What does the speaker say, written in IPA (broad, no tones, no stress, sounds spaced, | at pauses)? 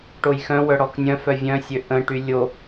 ʈ o j x œ̃ w œ ɽ ɔ k nʲ œ̃ f œ vʲ œ̃ sʲ ø ʔ ə̃ ʈ y lʲ o